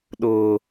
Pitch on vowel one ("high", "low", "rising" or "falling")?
low